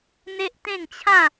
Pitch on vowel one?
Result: high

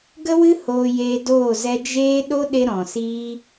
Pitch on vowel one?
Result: high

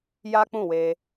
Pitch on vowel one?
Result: high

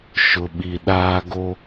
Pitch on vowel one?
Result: low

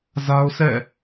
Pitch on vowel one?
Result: high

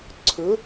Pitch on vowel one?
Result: rising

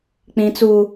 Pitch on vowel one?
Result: high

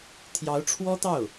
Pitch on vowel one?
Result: rising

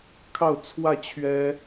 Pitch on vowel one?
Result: falling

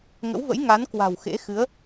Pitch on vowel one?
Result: rising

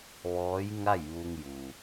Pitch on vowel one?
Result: rising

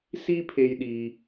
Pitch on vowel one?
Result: high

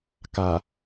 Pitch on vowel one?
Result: low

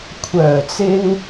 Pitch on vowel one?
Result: low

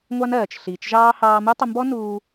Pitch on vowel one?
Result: high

